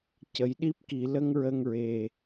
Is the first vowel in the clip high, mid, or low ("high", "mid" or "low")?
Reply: mid